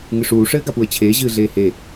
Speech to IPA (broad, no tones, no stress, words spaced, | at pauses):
ŋɨʂuː ʂɘːɡapuə̯t͡ɕʰeː ʑɨːɮeːhe